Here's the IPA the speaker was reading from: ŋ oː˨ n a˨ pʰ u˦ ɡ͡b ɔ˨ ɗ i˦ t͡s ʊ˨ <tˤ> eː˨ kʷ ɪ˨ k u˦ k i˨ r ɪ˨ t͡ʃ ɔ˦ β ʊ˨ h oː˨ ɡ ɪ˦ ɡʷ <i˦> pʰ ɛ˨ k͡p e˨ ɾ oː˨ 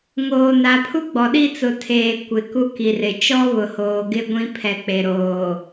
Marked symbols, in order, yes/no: no, no

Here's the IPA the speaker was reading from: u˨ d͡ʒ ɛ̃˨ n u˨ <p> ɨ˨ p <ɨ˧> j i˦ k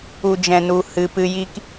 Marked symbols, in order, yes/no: no, yes

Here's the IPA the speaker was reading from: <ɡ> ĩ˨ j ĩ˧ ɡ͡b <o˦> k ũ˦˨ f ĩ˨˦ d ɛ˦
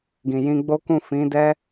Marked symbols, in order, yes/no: yes, yes

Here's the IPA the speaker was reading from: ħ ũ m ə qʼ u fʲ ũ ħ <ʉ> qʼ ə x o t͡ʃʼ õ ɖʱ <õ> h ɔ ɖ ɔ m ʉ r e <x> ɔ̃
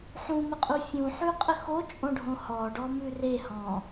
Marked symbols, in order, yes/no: yes, yes, no

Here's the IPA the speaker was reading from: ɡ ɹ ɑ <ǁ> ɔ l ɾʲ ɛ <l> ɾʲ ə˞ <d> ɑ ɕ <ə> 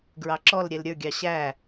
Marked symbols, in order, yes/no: yes, yes, no, no

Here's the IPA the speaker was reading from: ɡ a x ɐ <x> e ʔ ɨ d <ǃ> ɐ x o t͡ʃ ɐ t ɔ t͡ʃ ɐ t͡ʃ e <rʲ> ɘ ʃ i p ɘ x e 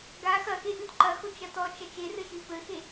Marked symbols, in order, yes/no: yes, yes, no

